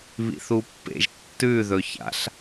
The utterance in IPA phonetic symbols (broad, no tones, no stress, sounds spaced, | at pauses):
β ḭ θ u pː ḛ ʒ tː ʉ ð ɵ ç a̰ ɬ